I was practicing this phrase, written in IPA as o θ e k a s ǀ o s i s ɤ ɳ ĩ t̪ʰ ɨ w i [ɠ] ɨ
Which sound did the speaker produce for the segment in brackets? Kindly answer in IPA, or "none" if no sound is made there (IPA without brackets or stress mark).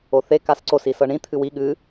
ɠ